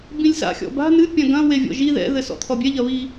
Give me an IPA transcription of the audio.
b ĩ lʲ s a̰ xʲ ɔ̰ b a̤ n ɨ pʲ ã ɡ ɐ̃ w e vʲ ɔ̰ ʒ i ð ɛ̰ ð ɘ s ɔ̰ t̪ʰ ɔ bʲ ɛ ʎ ɐ β i

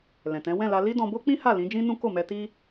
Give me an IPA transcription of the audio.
l ɛ̃˨ t ɛ̃˨˦ w ɛ̃˦˨ l a˧ l i˦ d ɔ̃˧ b o˦ k͡p ĩ˦ h a˦˨ l ĩ˨˦ d͡ʒ ĩ˦ n ũ˦ k o˦˨ m ɛ˧ t i˦

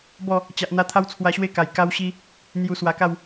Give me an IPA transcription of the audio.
b ɔ˥˧ | t͡ɕ a˨ ʔ n̪ a˧ t̪ʰ a˦ w t͡sʰ w a˧ ɕ w e˥˧ k a˨˩ j k a˧ w ɕ i˧ | n̪ j u˧ s w a˧ k a˥˧ w

